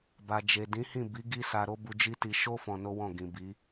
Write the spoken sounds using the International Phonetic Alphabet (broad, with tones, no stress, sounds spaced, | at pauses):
b a˨ d͡ʒ e˨ d ĩ˨˦ h ĩ˦˨ b i˨˦ ɡ i˦ s a˧ ɾ o˦ b u˧ d͡ʒ i˦ t i˧ ʃ o˦ f ɔ̃˧ n o˦ w ɔ̃˦˨ ɡ ĩ˨ b i˨˦